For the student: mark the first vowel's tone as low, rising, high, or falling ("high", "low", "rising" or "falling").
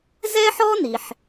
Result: high